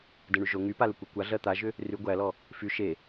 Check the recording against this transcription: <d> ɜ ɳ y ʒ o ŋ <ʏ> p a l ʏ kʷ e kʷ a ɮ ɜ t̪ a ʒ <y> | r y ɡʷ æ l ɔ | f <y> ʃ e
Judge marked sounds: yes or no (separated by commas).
yes, no, no, yes